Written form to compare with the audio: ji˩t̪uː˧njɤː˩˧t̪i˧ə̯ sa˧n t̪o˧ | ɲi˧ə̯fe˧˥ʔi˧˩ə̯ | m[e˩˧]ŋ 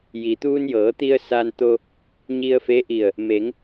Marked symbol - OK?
yes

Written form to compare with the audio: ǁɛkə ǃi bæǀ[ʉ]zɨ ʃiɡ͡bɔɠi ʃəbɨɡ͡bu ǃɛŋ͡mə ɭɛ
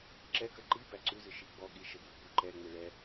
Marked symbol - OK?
yes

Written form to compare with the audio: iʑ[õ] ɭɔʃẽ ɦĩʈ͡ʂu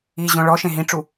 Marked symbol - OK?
yes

